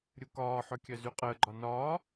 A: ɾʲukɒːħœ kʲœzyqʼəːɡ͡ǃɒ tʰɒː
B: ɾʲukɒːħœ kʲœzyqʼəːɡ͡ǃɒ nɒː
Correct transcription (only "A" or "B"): B